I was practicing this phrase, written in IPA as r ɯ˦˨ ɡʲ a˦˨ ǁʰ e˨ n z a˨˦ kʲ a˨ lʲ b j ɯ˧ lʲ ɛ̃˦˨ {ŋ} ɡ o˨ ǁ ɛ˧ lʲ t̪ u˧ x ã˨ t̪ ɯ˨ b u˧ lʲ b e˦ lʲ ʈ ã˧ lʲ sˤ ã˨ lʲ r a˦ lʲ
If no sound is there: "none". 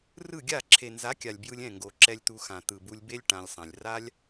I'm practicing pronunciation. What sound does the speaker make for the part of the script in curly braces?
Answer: ŋ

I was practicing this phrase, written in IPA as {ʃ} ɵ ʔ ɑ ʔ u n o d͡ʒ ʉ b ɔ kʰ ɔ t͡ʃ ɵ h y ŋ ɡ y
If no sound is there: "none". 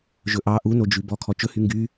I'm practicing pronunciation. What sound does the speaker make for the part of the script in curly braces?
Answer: ʒ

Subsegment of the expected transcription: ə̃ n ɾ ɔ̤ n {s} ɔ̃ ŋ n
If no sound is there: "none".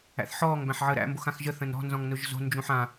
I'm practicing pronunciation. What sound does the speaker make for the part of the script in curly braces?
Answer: z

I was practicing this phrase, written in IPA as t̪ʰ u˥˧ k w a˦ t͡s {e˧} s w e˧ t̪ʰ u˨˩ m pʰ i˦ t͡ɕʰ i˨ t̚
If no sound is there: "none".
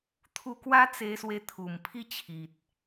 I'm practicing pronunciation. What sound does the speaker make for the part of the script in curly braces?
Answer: e˧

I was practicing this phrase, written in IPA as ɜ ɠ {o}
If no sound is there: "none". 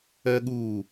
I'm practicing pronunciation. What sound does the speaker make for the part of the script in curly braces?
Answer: u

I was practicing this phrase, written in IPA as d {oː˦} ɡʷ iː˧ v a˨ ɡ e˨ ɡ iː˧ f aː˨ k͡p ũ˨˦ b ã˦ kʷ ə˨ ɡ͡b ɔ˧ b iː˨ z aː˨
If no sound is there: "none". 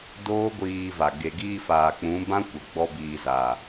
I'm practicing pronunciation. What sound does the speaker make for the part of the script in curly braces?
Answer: oː˦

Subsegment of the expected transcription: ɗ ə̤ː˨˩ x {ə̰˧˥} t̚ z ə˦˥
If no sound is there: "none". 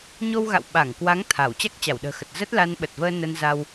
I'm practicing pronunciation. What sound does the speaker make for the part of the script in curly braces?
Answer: ə˨˩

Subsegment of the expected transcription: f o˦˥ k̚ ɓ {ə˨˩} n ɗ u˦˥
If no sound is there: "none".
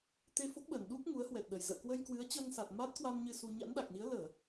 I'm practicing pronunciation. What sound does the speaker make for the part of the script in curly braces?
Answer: ə˨˩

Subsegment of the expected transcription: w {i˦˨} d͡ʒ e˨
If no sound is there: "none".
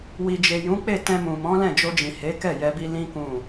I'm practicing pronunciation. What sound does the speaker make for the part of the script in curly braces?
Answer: i˨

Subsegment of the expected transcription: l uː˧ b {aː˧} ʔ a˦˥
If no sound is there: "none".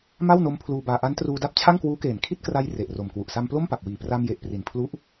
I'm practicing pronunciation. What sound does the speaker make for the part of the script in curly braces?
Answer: aː˧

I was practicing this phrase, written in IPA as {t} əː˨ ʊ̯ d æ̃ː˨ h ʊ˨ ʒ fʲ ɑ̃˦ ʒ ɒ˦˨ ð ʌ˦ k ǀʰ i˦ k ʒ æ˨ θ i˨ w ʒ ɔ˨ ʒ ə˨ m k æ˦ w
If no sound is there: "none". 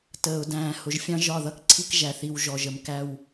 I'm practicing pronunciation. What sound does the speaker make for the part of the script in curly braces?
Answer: t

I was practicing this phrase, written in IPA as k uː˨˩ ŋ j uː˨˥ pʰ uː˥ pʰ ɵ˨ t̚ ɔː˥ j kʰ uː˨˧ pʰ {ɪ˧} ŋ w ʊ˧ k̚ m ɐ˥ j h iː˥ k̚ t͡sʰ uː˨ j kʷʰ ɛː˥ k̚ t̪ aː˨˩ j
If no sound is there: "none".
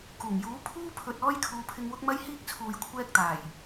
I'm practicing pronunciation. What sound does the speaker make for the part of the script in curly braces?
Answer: ɪ˧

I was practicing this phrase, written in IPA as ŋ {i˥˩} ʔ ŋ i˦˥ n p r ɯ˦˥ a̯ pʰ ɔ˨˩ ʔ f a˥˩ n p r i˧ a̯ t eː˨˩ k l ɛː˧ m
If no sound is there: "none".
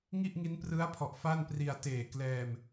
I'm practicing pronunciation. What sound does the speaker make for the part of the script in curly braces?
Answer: i˥˩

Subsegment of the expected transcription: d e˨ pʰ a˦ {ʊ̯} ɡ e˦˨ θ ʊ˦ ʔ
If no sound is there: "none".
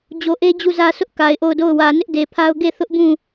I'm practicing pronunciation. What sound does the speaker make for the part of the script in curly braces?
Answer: ʊ̯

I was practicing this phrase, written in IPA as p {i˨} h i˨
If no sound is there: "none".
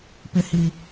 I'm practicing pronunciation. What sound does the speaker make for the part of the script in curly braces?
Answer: ɪ˨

